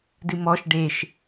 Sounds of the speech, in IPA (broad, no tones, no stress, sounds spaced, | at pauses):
d ɨ m ɔ ʃ ɖ e ʃ